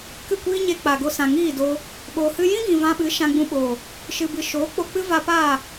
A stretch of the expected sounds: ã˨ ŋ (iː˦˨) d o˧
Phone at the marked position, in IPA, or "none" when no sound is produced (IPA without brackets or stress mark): iː˦˨